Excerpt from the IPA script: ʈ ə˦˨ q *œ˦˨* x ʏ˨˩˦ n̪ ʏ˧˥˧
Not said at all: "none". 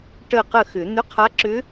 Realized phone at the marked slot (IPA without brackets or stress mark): ə˦˨